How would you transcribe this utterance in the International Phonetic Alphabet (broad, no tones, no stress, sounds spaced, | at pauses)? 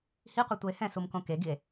h i qʷ ɯ tʷ ɤ e̯ h ɛ̃ s u m k õ k e ɡ i e̯